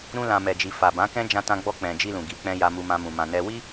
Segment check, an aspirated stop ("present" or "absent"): absent